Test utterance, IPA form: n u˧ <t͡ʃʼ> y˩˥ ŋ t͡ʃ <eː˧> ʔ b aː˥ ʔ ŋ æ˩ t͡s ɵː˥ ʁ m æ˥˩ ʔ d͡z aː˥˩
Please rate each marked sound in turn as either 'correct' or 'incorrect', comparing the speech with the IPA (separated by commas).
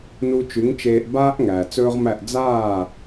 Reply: incorrect, correct